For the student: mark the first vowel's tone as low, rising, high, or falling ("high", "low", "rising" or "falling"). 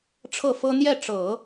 falling